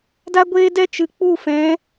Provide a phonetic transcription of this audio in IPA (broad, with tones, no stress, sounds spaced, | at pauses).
d a˦ ɡʷ eː˦ d ɛ˦ t͡ʃ ɨ˨ k͡p u˦˨ f ɛ̃˨˦